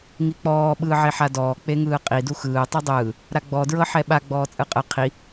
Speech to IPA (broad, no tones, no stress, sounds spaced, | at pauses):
ŋ i k͡p ɔː ɓ ɯː ʕ e ħ a d ɔː k͡p e ŋ ɯː qʼ i d u x ɯː tˤ ɯ dˤ ɯː | ɾ a ɡ͡b ɔ d ɹ ɤ ħ ɛ ɓ a ɡ͡b ɔː t͡sʼ ɯ qʼ ɯ qʰ i